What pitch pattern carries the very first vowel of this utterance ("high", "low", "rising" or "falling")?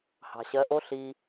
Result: low